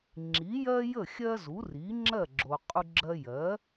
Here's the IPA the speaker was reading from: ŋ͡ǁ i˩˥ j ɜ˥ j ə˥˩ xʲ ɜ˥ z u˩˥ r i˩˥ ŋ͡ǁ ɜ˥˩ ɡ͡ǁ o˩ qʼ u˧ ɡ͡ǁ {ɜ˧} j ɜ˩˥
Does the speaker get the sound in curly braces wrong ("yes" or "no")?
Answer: no